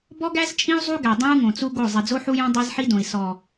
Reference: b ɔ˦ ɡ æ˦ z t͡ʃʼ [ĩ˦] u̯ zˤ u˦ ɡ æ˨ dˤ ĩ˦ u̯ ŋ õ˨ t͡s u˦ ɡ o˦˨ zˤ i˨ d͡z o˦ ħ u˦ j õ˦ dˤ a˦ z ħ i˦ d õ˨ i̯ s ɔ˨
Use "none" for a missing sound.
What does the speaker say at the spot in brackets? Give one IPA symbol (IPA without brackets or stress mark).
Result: ĩ˦